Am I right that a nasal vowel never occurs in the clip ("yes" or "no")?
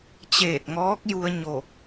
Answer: yes